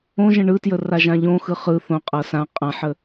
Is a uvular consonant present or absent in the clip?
present